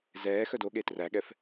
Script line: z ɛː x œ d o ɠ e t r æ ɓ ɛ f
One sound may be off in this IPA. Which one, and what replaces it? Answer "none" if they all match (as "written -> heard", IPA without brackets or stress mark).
ɓ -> ɠ